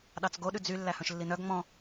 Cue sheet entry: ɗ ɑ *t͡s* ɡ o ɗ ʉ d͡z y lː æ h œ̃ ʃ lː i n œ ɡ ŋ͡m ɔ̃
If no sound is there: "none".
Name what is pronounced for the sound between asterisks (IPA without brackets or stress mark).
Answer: t͡s